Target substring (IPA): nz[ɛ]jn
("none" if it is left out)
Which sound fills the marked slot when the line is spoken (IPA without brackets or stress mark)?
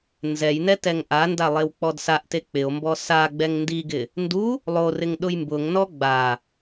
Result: ɛ